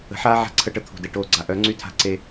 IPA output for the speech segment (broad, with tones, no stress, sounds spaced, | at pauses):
ə̤˨ ħ aː˦ ʕ a̤˦ ǀʰ ə˦˨ ʈ ə˦ t̪ʰ ṳ˨ d e˨ ʈ oː˦ ɡ͡ǀ a˦ ʔ œ˨˦ ŋ͡ǀ y˦ tʰ a̤˦ ǀ e˦